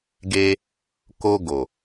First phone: ɡ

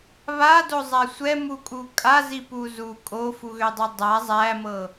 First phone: β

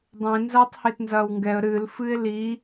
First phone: dˤ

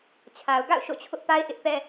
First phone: t͡ɕʰ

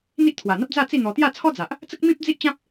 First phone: n̪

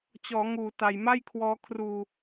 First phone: t͡ɕ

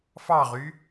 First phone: f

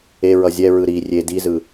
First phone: e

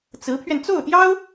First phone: t͡s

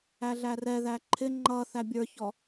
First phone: æ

